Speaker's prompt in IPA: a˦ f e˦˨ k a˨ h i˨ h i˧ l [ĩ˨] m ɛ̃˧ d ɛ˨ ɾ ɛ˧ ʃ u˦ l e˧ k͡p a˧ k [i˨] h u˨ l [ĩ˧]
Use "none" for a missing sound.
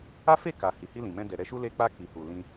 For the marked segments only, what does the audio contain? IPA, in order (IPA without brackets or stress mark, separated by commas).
ĩ˨, i˨, ĩ˧